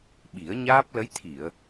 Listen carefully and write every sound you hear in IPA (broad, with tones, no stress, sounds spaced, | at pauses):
ɓ i˨˩˦ ə̯ ɲ aː˦˥ p̚ l ə˧˥ j t̪ʰ i˨˩˨ ə̯